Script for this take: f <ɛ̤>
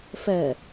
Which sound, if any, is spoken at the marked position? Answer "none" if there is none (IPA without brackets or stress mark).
ɛ